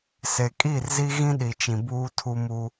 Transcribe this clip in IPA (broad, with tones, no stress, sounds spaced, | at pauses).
s e˨ kʼ i˦˨ r z i˦ ɣ ĩ˦ ɗ i˨ t͡ʃ ĩ˨ b uː˦ tʰ u˦ m u˦